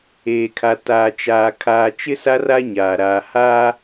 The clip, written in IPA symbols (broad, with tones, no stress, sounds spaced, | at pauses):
eː˨ kʰ a˨ t aː˨ t͡ʃ aː˨ kʰ aː˨ t͡ʃ ɪ˦ s a˦ r a˦ ɲ aː˨ ɾ aː˨ h aː˦